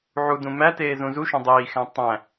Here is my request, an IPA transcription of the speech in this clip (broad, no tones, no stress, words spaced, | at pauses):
ʕudũ mæteː zũzuʃõ dˤiːxæ̃ tˤæ̃